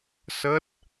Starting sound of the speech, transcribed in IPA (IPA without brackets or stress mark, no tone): s